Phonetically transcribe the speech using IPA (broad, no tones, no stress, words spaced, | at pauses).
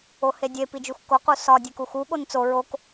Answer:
ohedʲe pid͡ʒuxko qusɒ dʲekuxu ɠont͡so ɹok